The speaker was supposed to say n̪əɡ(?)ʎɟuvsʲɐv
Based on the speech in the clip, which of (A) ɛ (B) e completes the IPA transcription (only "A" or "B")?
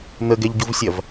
A